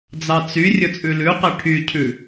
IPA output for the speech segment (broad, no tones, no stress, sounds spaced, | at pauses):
d͡z ɑ t͡s y rʲ ɵ t͡sʼ ʉ l ʉ q ɛ ʈʰ y cʰ ʉ